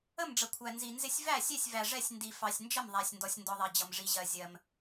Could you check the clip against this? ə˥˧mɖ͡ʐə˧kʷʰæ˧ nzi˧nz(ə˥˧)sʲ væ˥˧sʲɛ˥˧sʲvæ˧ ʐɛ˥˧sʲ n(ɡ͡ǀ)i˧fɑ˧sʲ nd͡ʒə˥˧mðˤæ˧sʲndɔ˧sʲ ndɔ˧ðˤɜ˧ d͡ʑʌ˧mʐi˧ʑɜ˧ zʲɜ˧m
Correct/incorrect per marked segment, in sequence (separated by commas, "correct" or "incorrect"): incorrect, incorrect